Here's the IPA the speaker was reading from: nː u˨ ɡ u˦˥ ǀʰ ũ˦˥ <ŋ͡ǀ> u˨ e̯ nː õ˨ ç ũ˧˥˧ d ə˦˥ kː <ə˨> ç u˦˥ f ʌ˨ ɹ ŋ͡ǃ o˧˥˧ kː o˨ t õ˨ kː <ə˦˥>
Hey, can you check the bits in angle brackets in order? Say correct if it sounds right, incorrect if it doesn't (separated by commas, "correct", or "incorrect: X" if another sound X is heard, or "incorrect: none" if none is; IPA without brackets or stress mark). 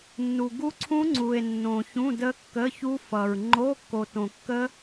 correct, incorrect: ə˧˥˧, correct